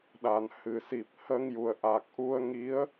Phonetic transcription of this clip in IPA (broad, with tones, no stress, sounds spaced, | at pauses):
ɗ a˨˩ n h ɨ˨˩ s i˨˩ p̚ h ə˧ ŋ j u˨˩ ə̯ ʔ a˨˩ k̚ ʔ u˧ ə̯ ŋ i˧˥ ə̯